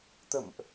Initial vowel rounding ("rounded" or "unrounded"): unrounded